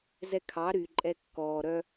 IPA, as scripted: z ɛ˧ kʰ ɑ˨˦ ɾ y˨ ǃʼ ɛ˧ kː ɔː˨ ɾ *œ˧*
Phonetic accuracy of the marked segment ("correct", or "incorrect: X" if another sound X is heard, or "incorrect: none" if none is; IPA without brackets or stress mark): correct